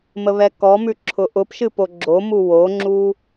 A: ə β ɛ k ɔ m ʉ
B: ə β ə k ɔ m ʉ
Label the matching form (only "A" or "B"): A